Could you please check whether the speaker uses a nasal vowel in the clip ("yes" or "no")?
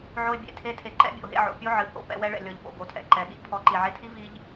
no